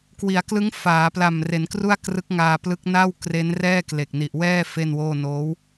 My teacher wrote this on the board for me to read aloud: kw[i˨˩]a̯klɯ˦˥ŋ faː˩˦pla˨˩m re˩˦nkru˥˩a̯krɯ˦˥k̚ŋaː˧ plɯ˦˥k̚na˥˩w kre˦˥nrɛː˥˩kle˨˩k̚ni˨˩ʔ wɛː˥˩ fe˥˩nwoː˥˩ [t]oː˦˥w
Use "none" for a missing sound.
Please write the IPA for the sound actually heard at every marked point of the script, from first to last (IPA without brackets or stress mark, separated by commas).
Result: i˩˦, n